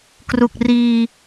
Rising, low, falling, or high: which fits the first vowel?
low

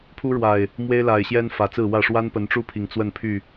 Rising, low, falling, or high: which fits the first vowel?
high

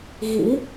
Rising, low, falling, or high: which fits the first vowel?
rising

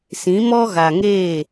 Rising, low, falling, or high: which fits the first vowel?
rising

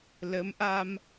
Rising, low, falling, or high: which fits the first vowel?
rising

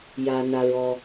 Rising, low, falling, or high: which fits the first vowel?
low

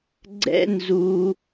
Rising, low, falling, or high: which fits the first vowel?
high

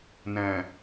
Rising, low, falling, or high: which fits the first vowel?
low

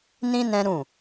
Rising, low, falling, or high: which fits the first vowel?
high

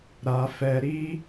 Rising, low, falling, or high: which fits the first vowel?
low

